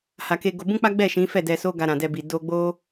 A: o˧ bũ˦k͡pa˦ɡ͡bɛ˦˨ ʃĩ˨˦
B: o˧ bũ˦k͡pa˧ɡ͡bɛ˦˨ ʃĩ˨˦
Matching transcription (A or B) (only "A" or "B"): A